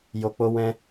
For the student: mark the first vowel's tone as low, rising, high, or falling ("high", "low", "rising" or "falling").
low